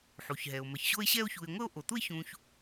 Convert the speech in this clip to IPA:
ħ u˩ ç ɦ ɛ˩ o̯ m ɜ˩ ç ɕ o˦ e̯ ɕ ɛ˦ o̯ ç u˨ e̯ ŋʷ ə˦ o̯ ʔ o˩ t̪ u˦ e̯ ç ũ˨ ç

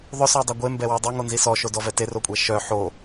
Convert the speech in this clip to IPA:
ðˤ ʏ s ɔ dˤ a ɡʷ e m b ɛ w y dˤ ɛ ŋ o n z i s ɔ ʃ o d ɔ v ɛ t e r o kʷʼ ɛ ʃ œ ħ o

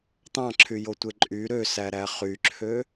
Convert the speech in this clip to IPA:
t̪ ɑ̃ ǁʰ y j o tʷ e ǃʼ y ɾ ø s æ ɾ æ χ y ǁʰ ø

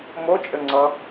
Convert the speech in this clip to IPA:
m o t͡ʃʼ ɘ ŋ͡ǀ ʌ

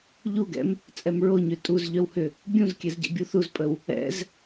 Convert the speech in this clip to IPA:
ʎ u ɡ ɛ̰ m | t͡sʼ ɛ m ɹ o ɲ ʏ tʼ u z ʎ œ w h ʏ | bʲ ũ z kʲ ɛ z ɟ ḛ bʲ u θ u z pʼ ə w | ɛ̰ z

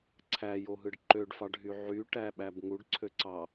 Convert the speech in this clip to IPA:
ǀʰ æ j o ɦ ɯ ɖ ǃ ø ɖ f ɑ ɖ ɦ y ʕ y ʈ æ ɓ æ b ŋ u ɖ ǀʰ ø ǀ ɑ

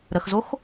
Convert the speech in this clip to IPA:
ɾ ə x z o x

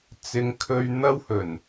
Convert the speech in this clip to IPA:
t͡s ɪ˨ ŋ kʰ ɵ˧ ɥ n̪ ɐ˥ w h ɵ˨˩ n

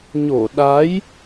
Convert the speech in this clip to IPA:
ɲ o˧˩ ɗ a˨˦ j

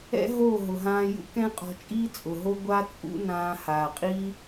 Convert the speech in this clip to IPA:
ɛ̰˦ ɦ oː˦˨ ɦ ʊ˨ ɦ ãː˧ j ṵ˦ k ɛ̃˦ qʼ ɔ̤˧ t͡ʃʼ iː˦ t͡sʼ ʊ˨ ɦ o˦ ɡʷ a˦ t͡sʼ ṵ˦ n ãː˧ h aː˨ qʼ i˦

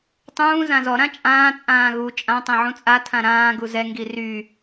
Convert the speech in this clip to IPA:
tˤ ũː z ã z ɔ ɾ ã t͡ʃʼ ãː t͡sʼ ãː ɣ u t͡ʃʼ ã tˤ ɛ̃ ʕ ũ t͡sʼ a tʰ ã ɾ ãː ɡ u z ɛ ŋ ɡ i r y

